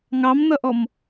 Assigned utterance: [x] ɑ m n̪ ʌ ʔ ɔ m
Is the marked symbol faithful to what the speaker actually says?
no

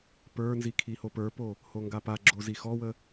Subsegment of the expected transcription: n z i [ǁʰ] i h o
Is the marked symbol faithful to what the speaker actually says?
no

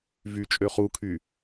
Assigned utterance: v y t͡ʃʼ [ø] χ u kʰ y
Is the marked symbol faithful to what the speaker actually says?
yes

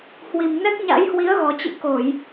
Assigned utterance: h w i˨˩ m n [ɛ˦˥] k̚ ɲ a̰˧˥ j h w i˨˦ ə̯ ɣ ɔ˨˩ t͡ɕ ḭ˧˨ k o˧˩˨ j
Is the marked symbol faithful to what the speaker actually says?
yes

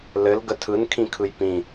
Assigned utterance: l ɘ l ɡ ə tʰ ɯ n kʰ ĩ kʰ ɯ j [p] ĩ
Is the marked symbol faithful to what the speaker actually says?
yes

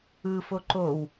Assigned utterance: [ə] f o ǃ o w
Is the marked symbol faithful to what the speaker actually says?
no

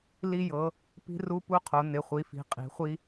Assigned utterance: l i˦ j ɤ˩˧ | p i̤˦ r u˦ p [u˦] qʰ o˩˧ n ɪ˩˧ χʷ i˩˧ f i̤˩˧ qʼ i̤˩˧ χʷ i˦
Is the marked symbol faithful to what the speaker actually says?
yes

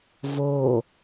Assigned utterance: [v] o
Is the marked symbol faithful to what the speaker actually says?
yes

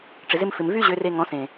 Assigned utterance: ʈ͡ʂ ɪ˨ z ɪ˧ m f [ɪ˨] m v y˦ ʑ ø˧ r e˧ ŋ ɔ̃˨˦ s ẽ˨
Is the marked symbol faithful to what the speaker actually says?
yes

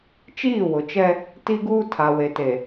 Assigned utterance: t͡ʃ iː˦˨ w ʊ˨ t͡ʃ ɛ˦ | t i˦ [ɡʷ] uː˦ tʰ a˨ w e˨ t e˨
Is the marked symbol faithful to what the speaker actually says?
no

